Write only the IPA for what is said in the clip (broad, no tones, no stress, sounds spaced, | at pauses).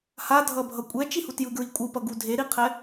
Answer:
h a dʱ ʌ bʱ ʌ kʷʼ ɛ t͡ʃ i h u t j ɯ ɡ ɹ i kʷʼ ɯ p ʌ ɡ u dʱ e ɾ i qʰ ɛ